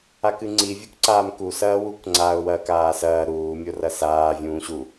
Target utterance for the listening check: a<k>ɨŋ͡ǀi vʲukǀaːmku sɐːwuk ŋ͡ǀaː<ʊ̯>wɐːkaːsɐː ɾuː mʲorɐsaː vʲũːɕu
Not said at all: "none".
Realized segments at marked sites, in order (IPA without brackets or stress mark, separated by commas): k, ʊ̯